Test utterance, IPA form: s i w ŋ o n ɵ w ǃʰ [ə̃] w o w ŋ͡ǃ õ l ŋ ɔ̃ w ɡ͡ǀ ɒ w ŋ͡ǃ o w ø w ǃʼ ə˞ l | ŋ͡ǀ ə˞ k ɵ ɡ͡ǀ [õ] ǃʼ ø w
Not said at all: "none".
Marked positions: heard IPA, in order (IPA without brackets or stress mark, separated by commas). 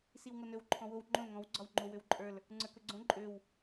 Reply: ɔ̃, õ